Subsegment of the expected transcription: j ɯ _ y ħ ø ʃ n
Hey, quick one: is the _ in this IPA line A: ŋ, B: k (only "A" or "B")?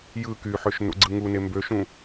B